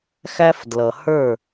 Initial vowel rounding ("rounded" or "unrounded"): unrounded